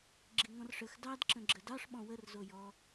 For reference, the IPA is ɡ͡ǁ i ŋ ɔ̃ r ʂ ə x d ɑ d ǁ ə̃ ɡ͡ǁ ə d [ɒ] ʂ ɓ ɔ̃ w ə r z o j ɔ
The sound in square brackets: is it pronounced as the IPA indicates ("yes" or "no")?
no